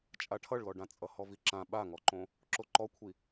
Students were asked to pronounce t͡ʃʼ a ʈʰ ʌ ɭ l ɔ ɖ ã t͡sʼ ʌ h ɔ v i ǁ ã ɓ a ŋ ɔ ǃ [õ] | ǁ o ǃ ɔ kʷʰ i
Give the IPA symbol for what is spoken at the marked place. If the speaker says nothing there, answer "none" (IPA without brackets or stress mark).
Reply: õ